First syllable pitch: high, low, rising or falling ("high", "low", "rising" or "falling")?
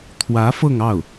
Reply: rising